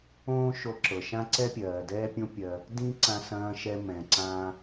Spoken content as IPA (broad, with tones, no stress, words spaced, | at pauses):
õː˥ʃo˧ǁɤ˩ʃã˥ ǀɛ˥pʲɜː˩dɛː˥pʲõ˥ pʲɜ˧ | dĩ˥ ǀã˧sɐ̃ː˧ʃɛ˧ mɛ̃˩ ǀã˧